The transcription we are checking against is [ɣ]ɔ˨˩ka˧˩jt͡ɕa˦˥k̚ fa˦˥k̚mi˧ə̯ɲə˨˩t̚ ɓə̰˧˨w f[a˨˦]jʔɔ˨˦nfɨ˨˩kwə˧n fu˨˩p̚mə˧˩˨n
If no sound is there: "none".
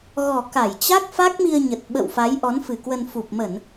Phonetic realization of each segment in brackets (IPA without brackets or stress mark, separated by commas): ɣ, a˨˦